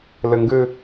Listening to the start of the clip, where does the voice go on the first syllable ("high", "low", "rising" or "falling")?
low